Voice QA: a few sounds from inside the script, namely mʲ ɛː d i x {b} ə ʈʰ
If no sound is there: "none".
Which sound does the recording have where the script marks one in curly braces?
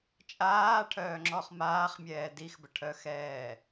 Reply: b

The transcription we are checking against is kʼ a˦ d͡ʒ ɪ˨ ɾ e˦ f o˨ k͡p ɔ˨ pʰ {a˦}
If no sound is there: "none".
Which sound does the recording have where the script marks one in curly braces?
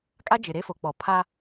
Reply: a˦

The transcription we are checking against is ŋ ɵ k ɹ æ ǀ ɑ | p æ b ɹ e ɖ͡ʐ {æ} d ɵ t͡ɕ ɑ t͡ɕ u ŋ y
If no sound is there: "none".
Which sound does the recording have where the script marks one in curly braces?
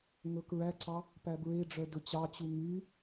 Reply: œ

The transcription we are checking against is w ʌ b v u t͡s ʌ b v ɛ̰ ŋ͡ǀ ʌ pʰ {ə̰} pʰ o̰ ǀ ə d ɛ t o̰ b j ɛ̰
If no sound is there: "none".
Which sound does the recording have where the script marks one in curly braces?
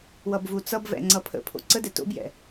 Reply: ə̰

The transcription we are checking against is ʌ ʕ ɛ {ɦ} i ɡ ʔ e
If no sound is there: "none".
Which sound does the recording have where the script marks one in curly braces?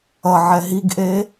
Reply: ɦ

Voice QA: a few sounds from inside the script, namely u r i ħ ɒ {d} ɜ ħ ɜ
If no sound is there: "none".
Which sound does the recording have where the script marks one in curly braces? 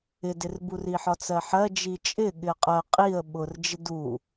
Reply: t͡s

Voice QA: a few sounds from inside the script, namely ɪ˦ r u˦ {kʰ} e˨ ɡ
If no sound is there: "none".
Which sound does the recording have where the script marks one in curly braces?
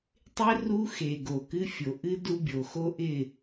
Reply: x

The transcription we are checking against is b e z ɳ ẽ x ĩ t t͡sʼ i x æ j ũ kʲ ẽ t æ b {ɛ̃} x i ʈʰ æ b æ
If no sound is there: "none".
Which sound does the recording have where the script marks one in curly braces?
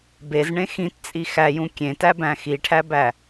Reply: æ̃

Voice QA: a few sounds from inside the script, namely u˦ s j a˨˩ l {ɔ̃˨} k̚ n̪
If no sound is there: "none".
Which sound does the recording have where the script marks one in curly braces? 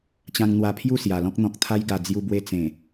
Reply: ɔ̃˦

